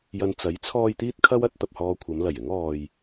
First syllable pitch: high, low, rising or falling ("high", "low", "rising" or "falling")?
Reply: low